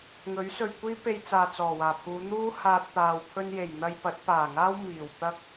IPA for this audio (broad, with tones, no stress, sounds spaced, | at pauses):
ŋ ɵ˨˥ ɥ s ɵ˨ ɥ kʷ iː˥ p e˧ j t͡s aː˨ t͡s ɔː˨˩ w aː˨˩ pʰ uː˨˧ n̪ uː˥ h aː˧ t̚ t̪ aː˨ w pʰ ɵ˧ n j e˨˩ j n̪ ɐ˧ j p ɐ˨˥ t̚ p aː˨˩ ŋ aː˥ w m iː˨˩ w t̪ ɐ˥ k̚